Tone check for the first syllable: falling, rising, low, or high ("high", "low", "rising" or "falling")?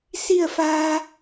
falling